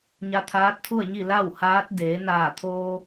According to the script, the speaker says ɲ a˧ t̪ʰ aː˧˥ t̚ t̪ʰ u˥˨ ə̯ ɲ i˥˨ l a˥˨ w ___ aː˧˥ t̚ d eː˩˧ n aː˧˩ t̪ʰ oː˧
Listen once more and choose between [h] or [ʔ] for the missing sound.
h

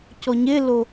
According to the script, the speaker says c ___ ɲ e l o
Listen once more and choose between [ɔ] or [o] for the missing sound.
ɔ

